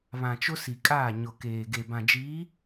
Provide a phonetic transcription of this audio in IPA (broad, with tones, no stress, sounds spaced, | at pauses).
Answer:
β ã˨ t͡ʃ ʊ˦ s i˨ kʼ aː˦˨ ɲ ʊ˨ k eː˨ ɡ e˨ b ã˨ d͡ʒ iː˨˦